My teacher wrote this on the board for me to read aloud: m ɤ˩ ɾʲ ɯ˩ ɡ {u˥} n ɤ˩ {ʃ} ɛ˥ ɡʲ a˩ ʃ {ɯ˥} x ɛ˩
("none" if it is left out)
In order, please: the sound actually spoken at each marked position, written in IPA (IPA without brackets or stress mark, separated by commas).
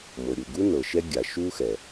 u˥, ʃ, u˥